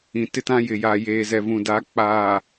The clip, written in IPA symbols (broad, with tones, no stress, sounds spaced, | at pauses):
ĩ˨ t ɪ˦ t ã˦ j ɪ˨ j aː˨ j eː˨ z ɛ˨ v ũ˨ d a˨˦ k͡p aː˨